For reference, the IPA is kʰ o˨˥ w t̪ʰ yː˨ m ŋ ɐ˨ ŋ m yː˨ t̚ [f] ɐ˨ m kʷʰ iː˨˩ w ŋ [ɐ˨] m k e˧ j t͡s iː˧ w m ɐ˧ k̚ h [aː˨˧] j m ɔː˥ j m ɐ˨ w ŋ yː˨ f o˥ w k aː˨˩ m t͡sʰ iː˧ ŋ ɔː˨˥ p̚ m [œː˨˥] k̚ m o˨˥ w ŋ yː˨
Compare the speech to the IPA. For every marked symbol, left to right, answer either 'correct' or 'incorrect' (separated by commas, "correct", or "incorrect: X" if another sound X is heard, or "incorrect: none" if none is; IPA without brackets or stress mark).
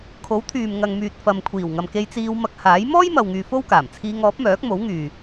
correct, correct, incorrect: aː˨˥, correct